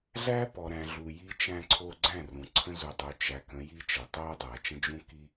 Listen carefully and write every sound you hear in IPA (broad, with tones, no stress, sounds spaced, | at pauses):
ɮ æ˦ p ɔ˨ ɾ æ̃˨ ɮ u˨ j i˦ t͡ʃ æ̃˦ ǀʰ o˦ ɡ͡ǀ æ̃˦˨ r ũ˨ ǀʰ ə̃˦ z u˨ dˤ u˨ t͡ʃ æ˨ k ə̃˨˦ j i˦ t͡ʃ ə˨ tˤ o˦ dˤ æ˨ t͡ʃ ə̃˦ d͡ʒ ũ˦ k i˦